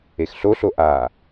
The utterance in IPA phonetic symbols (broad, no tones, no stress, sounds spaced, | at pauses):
e x ɬ o ɬ o ʔ a